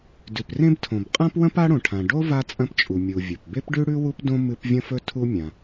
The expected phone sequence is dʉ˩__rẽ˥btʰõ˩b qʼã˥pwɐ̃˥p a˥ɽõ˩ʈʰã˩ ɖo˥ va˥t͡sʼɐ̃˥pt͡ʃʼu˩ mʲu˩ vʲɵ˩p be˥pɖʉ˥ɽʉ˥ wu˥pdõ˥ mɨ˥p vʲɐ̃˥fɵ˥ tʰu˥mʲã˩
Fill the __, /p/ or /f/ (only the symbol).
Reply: p